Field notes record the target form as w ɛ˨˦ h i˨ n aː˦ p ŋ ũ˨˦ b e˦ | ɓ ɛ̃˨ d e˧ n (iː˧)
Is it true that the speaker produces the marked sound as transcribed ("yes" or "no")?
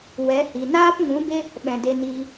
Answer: yes